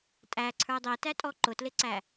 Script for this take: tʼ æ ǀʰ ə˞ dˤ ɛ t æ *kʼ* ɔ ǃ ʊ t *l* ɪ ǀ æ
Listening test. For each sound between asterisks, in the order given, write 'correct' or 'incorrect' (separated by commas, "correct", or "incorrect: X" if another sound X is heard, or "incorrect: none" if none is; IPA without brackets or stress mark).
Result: incorrect: tʼ, correct